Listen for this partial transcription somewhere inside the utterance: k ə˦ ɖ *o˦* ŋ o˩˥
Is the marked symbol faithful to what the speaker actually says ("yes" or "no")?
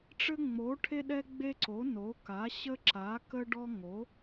no